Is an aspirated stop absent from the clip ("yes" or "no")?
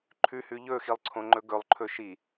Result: no